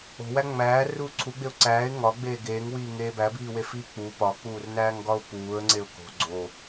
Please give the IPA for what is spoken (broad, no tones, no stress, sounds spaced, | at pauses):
o̤ w æ ŋ͡m æː r uː ǀʰ u ɡ͡b e ʊ̯ ǀ æː ɪ̯ ŋ ɒ ɡ͡b eː ɡ eː ŋ w iː ŋ eː b æ b iː w e f iː k͡p u p ɒ k͡p uː r n æː ŋ ɡ ɒ ʊ̯ p uː ə̯ ŋ͡ǀ e ʊ̯ k o̤ ɡ͡ǀ o